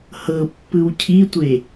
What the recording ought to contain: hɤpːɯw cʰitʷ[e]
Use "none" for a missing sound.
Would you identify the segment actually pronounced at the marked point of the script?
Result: e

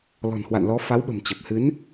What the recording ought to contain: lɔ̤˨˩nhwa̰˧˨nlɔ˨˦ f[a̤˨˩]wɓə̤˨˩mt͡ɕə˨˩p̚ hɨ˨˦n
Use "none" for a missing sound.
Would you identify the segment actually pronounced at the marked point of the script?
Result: a˨˦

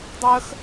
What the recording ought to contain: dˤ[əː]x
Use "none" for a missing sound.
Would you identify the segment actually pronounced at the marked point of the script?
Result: əː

